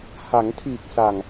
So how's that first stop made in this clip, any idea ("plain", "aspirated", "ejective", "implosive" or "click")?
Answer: aspirated